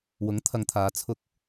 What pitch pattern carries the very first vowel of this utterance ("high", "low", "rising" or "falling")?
rising